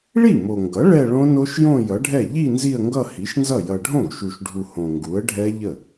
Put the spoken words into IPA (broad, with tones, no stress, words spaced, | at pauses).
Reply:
ɭi˥˩mo˨ŋɡʌ˩˥ ɭɛ˥˧ɭõ˦˥no˦˥ʃjõ˥˧ jʌ˩˥ɖʱɛ˥˩ ʎi˥˧ nzi˥˧ə̯ŋɡʌ˥˧hi˩˥ʃnzʌ˥˩ jʌ˨ɖʱõ˥˩ɡʃu˨ʃɖʱu˨ hõ˨ŋɡu˩˥ə̯ɖʱɛ˦˥ ʎə˥˩